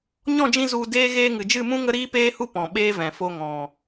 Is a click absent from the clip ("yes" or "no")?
yes